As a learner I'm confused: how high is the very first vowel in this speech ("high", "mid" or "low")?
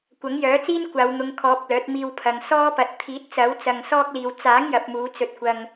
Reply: low